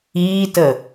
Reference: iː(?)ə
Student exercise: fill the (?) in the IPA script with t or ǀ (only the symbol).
t